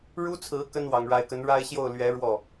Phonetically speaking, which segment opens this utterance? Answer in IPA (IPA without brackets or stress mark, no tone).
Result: ɻ